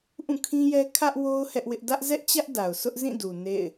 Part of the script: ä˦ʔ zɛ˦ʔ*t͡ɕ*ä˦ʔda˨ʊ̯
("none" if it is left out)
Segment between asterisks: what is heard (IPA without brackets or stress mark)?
t͡ɕ